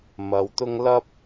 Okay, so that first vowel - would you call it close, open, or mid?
open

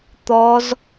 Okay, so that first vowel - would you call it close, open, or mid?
mid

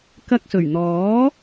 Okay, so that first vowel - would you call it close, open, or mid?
open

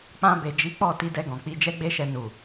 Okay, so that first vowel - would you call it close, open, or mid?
open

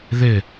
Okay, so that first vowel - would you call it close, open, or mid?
close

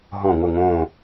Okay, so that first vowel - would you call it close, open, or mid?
mid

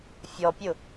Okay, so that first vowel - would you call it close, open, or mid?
mid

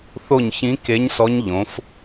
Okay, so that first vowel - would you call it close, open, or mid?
mid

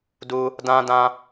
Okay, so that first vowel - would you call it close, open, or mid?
close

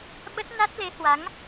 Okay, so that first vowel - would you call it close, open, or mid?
mid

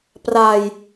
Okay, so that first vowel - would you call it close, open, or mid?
open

